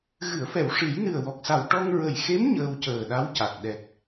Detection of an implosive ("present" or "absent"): present